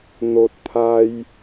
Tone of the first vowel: low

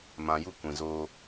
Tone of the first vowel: low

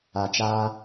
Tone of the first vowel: low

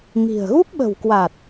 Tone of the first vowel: low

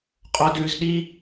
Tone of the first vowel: high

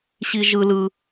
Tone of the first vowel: high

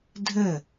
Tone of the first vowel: falling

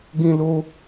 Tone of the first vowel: high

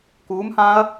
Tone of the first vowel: rising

